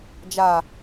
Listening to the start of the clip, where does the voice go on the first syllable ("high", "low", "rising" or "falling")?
low